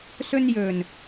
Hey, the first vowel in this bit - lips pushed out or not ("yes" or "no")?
yes